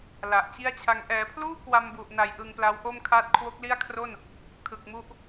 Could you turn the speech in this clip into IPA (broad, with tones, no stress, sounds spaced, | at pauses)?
l a˨˩ ʔ t͡ɕ i˥˩ a̯ t͡ɕʰ a˧ ŋ ʔ ɛː˩˦ pʰ l uː˥˩ k w a˧ m b u˨˩ ʔ n a˩˦ j ʔ ɯ˧ ŋ p l a˦˥ w ʔ o˥˩ m kʰ a˦˥ t̚ kʰ w o˦˥ k̚ l i˥˩ a̯ kʰ r o˥˩ n | kʰ ɯ˨˩ k̚ m u˦˥ ʔ